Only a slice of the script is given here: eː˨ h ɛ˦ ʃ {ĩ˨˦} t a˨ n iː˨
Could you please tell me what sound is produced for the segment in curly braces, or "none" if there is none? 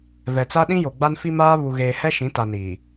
ĩ˨˦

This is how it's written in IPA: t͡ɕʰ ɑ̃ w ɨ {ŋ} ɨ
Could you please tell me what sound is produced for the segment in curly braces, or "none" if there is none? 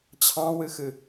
x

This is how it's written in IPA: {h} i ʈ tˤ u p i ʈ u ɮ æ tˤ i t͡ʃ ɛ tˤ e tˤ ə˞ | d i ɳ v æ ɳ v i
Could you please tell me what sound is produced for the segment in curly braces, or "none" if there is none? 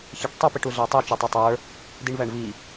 ç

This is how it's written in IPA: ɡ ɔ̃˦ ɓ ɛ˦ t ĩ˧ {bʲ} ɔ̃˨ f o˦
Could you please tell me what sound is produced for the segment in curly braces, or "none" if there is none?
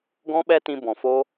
b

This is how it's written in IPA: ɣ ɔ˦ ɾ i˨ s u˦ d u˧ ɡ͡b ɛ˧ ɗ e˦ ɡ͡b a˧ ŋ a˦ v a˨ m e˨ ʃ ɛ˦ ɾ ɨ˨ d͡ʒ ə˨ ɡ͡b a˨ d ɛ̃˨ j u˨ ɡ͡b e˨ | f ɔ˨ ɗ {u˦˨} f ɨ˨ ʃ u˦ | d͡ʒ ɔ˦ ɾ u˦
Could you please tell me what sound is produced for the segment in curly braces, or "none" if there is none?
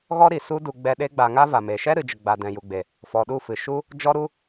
u˦˨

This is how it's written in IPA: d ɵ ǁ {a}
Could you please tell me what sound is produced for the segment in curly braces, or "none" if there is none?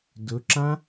ã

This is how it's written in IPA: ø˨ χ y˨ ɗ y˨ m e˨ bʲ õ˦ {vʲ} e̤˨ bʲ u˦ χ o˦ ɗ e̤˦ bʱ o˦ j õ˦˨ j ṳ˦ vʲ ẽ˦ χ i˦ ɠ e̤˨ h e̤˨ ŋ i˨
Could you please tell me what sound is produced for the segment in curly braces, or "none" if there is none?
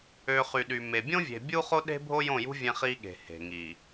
vʲ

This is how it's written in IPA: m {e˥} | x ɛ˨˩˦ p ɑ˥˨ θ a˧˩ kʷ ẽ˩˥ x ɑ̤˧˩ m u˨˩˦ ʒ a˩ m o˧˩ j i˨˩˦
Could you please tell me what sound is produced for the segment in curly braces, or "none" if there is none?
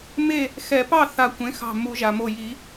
e˥˨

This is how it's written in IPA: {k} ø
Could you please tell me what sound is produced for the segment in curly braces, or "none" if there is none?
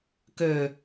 k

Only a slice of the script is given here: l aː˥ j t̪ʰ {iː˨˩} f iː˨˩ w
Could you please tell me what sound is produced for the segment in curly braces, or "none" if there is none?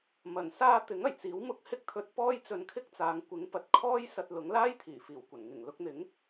iː˨˩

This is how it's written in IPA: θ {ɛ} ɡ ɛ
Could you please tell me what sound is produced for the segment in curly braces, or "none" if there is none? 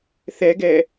ɛ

